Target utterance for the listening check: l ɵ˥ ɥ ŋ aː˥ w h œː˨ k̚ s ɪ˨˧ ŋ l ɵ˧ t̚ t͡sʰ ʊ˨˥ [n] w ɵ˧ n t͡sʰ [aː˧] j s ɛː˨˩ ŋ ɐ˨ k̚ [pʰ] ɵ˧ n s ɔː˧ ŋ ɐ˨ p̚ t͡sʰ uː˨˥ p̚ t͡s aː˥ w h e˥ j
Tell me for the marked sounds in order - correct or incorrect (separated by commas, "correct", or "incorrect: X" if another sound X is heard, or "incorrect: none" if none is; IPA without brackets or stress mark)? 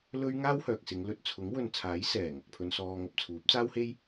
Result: incorrect: ŋ, incorrect: aː˨˥, correct